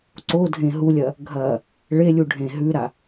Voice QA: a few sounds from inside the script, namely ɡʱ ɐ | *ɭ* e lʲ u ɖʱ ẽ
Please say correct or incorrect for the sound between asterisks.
correct